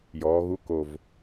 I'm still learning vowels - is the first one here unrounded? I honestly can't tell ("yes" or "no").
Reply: no